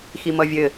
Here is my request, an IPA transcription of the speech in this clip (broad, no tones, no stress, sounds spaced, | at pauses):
x i m ʌ vʲ ɘ